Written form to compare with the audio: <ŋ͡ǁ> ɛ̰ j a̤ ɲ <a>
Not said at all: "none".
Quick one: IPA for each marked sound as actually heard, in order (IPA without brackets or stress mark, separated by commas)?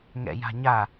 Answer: ŋ, a